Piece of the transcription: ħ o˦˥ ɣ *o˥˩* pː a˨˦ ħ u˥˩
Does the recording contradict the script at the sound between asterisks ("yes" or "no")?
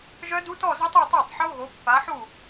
yes